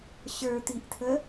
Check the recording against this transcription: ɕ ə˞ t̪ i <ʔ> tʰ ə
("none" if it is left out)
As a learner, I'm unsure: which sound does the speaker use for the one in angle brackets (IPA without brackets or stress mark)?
ʔ